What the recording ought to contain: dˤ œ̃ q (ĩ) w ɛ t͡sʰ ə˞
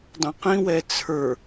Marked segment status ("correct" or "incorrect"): correct